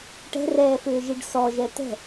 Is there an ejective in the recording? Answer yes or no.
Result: no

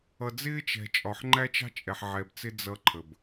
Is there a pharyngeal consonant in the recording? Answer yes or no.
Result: yes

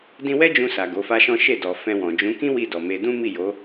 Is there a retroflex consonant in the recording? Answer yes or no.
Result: no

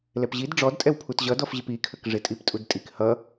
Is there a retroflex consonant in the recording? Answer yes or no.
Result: yes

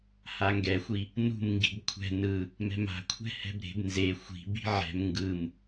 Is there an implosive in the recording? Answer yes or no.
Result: no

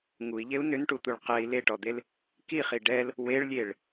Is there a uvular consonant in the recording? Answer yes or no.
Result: yes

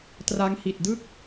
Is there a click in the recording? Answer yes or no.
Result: no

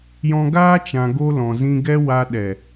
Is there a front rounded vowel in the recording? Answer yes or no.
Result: no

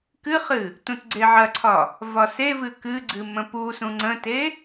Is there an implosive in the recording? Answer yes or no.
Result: no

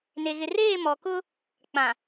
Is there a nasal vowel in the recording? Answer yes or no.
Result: yes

